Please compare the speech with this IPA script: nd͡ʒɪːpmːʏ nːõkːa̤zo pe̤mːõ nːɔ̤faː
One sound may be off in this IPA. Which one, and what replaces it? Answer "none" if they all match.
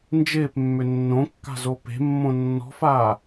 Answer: none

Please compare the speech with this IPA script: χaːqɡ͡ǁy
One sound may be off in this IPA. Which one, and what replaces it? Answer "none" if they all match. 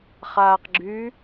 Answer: none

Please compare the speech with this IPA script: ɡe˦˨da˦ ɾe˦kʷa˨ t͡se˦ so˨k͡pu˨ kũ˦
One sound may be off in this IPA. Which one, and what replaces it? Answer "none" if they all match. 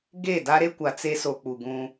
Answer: k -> ɡ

